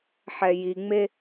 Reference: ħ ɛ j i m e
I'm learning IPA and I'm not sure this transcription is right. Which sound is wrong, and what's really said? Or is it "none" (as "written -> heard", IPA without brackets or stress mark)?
m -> ŋ͡m